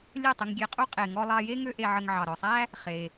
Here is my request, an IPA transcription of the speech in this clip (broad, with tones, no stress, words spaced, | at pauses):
lʲə˥˩tˤə˧ŋɡʲe˧qʼu˥ qʼe˩ŋɔ˧lˠɑ˧je˥ ŋø˥ʔe˧ʕə˧ŋ ʕɑ˩ɾɔ˩sˤæ˥ | χe˩